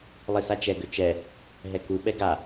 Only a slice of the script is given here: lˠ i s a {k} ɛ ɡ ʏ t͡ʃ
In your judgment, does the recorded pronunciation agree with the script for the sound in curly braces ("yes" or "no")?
no